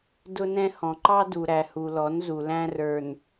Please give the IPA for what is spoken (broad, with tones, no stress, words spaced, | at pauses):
dʊ˦nɛ̃˦ hɔ̃˨ǃɑ˦ du˨ɾæ˨hu˨lɔ˨˦n zu˨læ̃˦rə˞˨n